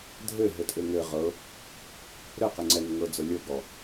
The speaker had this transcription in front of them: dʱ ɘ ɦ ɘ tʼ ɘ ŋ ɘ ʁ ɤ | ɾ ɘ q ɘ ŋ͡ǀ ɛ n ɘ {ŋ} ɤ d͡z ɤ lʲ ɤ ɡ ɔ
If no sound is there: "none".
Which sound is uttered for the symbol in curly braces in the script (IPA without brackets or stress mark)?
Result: ŋ